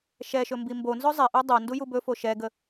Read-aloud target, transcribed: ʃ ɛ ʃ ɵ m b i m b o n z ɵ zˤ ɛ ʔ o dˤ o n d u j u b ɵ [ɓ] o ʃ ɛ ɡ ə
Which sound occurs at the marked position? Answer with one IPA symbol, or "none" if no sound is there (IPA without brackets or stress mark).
f